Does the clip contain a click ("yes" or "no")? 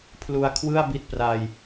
no